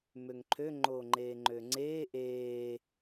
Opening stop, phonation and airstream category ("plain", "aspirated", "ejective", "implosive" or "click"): click